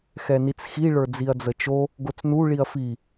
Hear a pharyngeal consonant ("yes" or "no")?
no